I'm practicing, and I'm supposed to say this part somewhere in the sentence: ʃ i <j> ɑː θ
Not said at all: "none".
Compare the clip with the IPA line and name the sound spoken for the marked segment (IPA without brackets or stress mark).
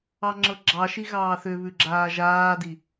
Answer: ɣ